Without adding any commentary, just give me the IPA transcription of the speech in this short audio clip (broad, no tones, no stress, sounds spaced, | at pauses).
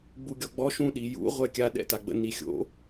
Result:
ɡ͡b u ɡʲ ɔ ɡ͡b ɔ ʃ ũ ɗ i j ṵ ʁʷ ɛ kʲ a ɗ ɛ̰ t a ɡ͡b ə̰ n i xʲ o̰